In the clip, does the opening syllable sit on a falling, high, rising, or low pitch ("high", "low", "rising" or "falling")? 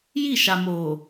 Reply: falling